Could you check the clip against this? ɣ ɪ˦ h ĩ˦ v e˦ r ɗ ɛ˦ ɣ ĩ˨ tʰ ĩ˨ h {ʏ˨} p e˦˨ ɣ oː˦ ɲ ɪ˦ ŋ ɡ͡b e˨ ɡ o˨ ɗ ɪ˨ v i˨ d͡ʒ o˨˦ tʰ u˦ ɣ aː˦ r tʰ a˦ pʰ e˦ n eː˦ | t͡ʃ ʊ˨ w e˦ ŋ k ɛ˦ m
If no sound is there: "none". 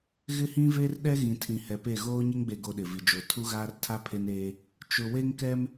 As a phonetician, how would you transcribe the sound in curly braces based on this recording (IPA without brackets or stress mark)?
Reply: ɛ˨